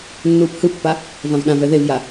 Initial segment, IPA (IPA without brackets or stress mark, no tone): nː